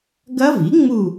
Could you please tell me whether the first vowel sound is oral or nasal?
oral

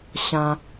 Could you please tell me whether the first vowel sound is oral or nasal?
nasal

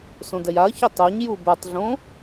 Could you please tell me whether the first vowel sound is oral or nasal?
nasal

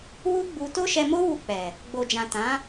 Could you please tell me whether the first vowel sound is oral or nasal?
oral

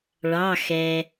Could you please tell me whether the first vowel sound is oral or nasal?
oral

